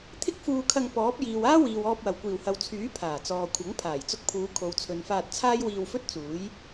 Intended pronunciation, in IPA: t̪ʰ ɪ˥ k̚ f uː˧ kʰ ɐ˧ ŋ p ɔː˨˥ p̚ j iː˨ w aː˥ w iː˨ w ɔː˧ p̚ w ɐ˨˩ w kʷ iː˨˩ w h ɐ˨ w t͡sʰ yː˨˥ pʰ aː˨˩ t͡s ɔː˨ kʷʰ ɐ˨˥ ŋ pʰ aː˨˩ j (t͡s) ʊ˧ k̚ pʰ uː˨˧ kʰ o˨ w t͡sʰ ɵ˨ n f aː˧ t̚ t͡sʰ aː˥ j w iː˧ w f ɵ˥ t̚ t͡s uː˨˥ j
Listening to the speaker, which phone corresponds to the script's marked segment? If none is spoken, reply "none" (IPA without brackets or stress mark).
t͡s